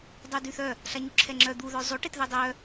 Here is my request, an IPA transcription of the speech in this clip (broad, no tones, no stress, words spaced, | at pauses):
dˤœdyθœ | ɬaɲuǁʰɛŋ͡ǁœ d̪u ðœzˤo ʈetðɛdˤœ